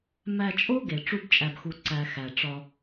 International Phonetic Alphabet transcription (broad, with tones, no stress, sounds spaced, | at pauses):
m æ˧ t͡ʃʼ o˦ ɡ e˨ ʈ͡ʂ u˧ b t͡ʃʼ æ˨ b x u˨ ǀ æ˨ x æ˨ ʈ͡ʂ ɒ˧